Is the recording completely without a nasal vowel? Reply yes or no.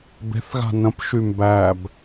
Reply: no